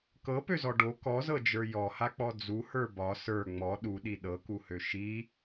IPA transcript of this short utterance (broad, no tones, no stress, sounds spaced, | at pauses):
k ɤ p ø z ɔ ɖ o k ɔ z ɤ d͡ʒ ə˞ j ɔ h a k͡p ɔ d͡z u h ə˞ b ɒ s ə˞ ŋ͡m ɔ ɗ u ɗ i ɗ ɤ k u h ø ʃ i